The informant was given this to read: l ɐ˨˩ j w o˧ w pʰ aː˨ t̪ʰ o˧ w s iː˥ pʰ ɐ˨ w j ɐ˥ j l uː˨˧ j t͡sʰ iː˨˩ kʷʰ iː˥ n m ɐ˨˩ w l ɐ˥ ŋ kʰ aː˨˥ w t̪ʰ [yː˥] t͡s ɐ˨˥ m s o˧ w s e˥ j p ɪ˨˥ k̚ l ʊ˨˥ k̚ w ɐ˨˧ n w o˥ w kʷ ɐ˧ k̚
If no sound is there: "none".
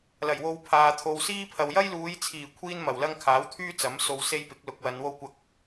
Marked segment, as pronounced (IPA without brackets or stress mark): yː˥